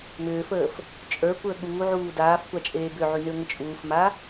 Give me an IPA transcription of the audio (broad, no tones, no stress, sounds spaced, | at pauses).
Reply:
m ʏː f əː f | t͡ʃʼ ə˞ kʷ əː ɠ uː ʕ uː d aː f kʷ a t͡ʃʼ eː b ʏ ʕ y n ʏː ŋʷ ə t͡ʃʼ uː f m a